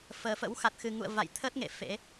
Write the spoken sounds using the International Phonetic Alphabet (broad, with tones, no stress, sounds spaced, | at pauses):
f əː˨˩ f ə̰˧˥ w x a˨˩ t̚ x ɨ˨˩ ŋ ṵ˧˨ ə̯ v a̰˧˨ j t̪ʰ ə˦˥ t̚ ŋ ḛ˧˨ f ḛ˧˥